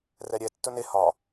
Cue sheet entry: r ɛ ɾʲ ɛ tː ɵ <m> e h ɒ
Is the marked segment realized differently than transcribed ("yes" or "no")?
yes